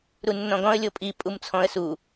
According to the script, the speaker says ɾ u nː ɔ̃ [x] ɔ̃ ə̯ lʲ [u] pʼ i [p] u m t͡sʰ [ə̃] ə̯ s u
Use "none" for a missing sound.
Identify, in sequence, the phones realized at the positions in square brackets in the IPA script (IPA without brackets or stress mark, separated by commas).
ɡ, o, pʼ, ɔ̃